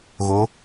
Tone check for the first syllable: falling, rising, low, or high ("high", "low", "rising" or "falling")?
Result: rising